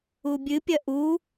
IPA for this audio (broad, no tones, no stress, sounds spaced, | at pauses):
u bʲ ɨ pʲ ɐ ʔ u